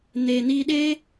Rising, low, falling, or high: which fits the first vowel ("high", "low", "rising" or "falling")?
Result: low